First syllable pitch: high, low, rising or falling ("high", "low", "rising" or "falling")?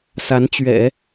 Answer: rising